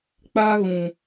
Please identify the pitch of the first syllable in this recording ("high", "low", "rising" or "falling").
high